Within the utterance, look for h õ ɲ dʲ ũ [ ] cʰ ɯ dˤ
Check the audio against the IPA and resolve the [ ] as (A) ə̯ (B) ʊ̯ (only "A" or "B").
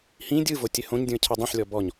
A